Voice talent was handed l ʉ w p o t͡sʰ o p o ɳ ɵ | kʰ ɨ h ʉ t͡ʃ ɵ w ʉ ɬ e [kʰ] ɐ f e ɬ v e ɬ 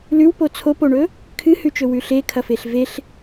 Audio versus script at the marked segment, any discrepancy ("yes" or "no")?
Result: no